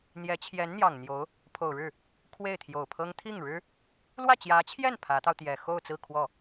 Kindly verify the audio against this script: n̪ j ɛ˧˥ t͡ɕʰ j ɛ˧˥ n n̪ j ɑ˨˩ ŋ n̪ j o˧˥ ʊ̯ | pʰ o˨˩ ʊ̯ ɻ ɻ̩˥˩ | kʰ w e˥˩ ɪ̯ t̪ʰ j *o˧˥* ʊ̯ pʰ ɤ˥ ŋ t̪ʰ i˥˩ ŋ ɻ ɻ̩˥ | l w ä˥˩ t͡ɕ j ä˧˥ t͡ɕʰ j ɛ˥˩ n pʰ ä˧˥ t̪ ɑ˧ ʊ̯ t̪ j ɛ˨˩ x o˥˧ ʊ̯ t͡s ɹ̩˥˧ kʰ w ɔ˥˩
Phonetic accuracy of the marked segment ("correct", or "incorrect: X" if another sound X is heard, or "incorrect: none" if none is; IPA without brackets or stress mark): incorrect: o˨˩